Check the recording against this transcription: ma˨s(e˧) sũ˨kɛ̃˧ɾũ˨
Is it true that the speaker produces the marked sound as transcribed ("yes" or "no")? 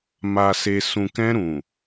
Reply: no